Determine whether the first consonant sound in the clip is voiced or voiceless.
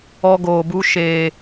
voiced